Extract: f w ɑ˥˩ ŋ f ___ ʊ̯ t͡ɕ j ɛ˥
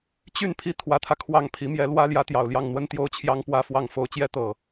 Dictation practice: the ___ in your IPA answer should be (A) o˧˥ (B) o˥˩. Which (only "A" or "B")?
A